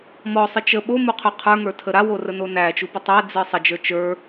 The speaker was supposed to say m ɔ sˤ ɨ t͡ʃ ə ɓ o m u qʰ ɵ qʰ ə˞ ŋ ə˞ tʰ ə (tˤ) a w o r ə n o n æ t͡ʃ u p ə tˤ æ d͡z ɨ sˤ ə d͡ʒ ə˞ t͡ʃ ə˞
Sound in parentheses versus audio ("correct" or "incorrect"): incorrect